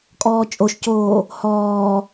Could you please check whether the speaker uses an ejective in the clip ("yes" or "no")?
yes